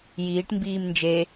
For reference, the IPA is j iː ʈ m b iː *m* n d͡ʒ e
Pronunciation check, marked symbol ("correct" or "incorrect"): correct